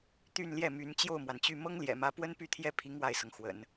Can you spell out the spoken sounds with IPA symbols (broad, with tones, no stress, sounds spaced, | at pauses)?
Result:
t̪ y˥˧ n l j ɛ˥˩ m y˧˥ n t͡ɕ j o˥˩ ʊ̯ m w a˩ n t͡ɕ y˥˩ m ɤ˥ ŋ l j ɛ̰˨˩ m ä˧˥ p w ə˥ n p y˥˧ t̪ʰ j ɛ˥˩ pʰ i˧˥ ŋ w a˥˩ ɪ̯ s ɤ˩ ŋ x w ə̰˨˩˦ n